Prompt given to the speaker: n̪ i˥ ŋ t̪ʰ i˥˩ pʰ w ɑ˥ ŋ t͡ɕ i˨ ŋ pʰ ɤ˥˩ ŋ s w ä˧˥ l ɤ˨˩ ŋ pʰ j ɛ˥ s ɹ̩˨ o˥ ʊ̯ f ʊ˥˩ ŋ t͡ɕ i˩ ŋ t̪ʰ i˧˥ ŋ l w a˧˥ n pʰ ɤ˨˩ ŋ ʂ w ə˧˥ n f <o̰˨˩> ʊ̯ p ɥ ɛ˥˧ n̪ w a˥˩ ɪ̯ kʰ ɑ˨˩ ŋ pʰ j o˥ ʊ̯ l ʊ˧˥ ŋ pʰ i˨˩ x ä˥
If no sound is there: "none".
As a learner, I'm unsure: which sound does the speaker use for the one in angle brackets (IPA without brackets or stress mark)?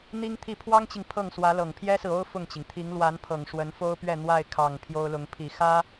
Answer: o˥